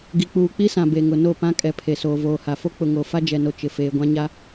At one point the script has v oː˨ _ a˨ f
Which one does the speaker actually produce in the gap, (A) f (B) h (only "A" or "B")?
B